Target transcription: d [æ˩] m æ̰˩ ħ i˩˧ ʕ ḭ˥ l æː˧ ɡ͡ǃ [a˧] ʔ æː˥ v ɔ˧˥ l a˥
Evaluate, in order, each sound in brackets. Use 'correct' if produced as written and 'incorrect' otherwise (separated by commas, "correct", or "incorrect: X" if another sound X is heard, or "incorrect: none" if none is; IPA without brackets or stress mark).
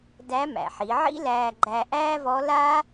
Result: incorrect: æ˧˥, incorrect: æ˧